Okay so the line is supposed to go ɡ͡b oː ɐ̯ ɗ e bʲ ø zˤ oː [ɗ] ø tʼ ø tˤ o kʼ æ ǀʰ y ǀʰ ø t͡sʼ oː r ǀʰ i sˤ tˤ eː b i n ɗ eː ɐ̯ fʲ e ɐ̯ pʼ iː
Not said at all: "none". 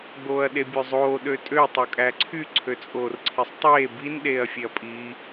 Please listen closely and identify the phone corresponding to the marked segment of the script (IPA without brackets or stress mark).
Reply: ɗ